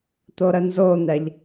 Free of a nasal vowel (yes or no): yes